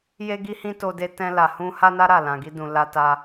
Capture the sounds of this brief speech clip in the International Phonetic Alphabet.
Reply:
j e˦ ɡ i˦ h ĩ˦ t o˧ d e˧ t ɛ̃˧ l a˨ h ũ˧ h a˦ n a˦ ɾ a˦˨ l ã˨ ɡ i˧ d ũ˨ l a˧ t a˧

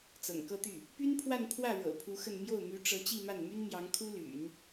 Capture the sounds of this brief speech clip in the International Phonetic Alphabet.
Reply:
t͡s ɤ̰˨˩ ŋ k ɤ˥˧ t̪ y˥˩ | p y˥ n pʰ w a˥˧ n pʰ w ä˥˩ ɻ ɤ̰˨˩ pʰ u˧˥ x ə˥˧ n m j o˥˩ ʊ̯ m y˧˥ ʈ͡ʂ ɤ˧˥ t͡ɕ i˥˧ m a˥˩ n m y˥ n m j ɑ˧˥ ŋ kʰ u˥ l y̰˨˩˦ n

